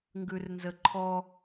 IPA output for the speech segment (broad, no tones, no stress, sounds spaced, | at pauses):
ŋ ɡ ʉ r n z ə ǃʰ ɔ